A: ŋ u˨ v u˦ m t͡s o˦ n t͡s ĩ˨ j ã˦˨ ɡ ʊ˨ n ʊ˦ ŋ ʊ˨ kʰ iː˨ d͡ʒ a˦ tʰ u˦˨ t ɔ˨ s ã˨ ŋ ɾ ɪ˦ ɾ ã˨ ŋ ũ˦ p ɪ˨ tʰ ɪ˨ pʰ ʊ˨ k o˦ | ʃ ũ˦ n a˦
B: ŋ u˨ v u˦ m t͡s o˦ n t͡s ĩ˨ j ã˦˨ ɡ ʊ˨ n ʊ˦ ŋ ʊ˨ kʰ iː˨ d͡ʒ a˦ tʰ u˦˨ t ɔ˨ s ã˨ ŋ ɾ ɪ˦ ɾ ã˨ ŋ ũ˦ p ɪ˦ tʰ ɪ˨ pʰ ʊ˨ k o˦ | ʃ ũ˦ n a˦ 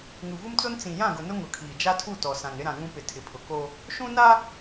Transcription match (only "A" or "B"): A